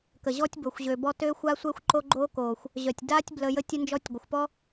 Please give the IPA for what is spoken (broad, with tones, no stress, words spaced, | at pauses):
kə˨ʑɔ˦tʲbo˨xʷʑø˨ bɔ˧tøː˦xʷa˦ sʷɛ˦xʷ ǃo˦ɡ͡ǃoː˦koː˨xʷ | ʑœ˨tʲdaː˦tʲ blə˧ jə˧tʲə˧nd͡ʒɔ˧tʲ ɡʷə˨xʷpɔ˦